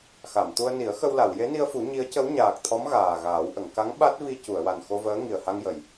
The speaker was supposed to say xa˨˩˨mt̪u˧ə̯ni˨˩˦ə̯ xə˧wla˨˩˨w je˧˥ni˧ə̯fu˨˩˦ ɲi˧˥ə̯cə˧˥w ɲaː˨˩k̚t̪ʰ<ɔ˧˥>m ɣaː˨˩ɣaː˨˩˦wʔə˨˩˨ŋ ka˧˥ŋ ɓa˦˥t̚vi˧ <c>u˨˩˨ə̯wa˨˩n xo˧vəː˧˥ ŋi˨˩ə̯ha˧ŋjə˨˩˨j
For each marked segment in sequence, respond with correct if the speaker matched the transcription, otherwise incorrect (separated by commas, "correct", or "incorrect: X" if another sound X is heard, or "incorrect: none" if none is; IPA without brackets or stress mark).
correct, correct